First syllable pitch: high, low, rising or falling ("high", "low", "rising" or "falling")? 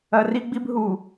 low